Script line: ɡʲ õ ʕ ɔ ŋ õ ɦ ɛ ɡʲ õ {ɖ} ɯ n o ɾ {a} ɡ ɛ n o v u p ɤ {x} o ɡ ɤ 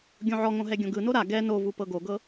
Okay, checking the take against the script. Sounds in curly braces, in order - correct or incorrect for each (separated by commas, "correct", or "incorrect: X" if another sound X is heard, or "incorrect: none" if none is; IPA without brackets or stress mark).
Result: incorrect: ɡ, correct, incorrect: ɡ